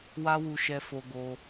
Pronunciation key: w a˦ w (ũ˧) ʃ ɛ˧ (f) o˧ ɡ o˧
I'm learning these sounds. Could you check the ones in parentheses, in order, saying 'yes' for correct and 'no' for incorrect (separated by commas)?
no, yes